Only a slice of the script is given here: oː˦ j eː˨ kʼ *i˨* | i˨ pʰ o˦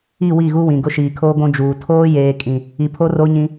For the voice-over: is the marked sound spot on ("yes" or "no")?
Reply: no